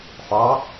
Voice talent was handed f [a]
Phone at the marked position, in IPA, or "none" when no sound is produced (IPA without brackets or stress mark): ɑ